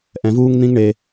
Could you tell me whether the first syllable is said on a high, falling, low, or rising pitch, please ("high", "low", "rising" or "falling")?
low